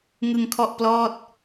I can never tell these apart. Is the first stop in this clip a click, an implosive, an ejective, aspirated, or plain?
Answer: aspirated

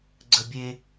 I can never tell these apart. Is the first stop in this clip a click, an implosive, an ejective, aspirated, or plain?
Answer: click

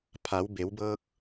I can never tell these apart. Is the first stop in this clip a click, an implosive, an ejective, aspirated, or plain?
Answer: aspirated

